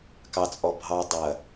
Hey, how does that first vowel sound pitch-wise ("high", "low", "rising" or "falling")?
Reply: low